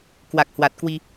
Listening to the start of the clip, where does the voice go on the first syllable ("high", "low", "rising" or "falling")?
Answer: low